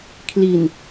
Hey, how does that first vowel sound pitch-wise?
low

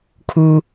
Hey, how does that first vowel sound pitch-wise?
low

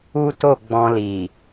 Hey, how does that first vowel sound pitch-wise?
high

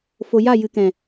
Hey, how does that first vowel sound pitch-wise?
low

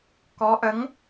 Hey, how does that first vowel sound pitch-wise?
rising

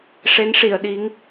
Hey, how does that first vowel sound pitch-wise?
rising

